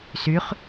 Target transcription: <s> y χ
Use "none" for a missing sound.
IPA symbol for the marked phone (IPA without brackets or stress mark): s